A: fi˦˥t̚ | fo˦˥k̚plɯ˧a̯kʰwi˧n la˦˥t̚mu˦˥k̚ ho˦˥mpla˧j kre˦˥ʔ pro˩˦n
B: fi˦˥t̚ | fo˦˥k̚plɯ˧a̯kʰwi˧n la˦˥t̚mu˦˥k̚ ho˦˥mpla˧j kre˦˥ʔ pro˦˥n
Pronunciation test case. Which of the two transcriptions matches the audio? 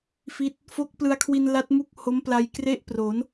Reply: A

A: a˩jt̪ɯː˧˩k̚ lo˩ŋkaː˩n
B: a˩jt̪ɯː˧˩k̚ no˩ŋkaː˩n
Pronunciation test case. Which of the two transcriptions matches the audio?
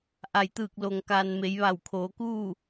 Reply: A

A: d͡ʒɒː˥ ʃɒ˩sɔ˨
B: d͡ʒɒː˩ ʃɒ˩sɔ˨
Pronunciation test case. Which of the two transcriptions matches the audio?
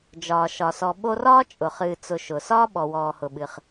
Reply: B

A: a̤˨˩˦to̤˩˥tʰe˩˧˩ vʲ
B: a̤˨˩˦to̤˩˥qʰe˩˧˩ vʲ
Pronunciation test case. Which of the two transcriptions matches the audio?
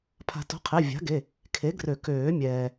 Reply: B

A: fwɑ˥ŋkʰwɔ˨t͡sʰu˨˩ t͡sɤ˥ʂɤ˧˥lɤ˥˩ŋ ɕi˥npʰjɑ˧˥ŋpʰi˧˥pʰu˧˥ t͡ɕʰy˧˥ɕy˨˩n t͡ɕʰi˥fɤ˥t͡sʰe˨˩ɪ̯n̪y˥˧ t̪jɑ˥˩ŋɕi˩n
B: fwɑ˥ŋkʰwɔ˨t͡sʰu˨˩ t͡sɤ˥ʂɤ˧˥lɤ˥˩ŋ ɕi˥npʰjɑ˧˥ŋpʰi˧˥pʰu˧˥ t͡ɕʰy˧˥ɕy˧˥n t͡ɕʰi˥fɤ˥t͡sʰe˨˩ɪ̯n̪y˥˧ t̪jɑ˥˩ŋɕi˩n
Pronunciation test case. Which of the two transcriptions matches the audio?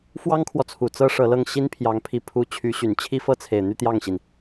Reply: A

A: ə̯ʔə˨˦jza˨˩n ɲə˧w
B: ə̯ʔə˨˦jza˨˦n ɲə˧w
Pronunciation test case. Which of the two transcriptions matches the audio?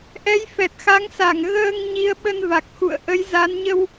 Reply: B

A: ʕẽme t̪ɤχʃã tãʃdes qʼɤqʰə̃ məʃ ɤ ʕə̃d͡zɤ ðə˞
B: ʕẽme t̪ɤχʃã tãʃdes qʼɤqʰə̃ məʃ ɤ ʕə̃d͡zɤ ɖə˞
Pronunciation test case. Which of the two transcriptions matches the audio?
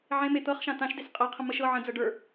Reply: B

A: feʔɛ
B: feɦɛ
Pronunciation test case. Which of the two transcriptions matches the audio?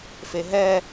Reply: B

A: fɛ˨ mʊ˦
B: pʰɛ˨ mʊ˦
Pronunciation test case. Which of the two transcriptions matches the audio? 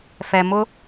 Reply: A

